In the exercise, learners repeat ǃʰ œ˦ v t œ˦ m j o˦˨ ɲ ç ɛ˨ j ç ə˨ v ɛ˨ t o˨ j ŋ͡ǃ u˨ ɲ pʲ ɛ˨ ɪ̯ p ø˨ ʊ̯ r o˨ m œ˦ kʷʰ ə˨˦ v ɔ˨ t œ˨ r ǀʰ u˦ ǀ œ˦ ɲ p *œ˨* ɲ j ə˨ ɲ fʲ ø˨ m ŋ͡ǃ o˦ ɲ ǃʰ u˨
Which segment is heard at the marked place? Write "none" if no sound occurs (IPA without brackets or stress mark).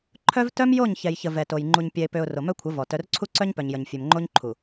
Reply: œ˨